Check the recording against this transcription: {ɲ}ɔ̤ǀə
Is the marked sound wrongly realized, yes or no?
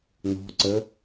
yes